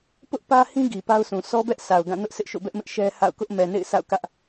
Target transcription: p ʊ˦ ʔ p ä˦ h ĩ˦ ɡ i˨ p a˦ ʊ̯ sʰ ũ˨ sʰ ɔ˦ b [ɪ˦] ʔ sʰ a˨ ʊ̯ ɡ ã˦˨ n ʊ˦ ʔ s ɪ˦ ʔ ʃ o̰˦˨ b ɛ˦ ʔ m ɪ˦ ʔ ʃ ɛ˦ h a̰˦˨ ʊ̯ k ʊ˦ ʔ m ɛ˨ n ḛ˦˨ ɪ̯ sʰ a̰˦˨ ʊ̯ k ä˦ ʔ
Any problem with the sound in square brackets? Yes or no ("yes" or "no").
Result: yes